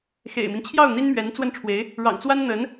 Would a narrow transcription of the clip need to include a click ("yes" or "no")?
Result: no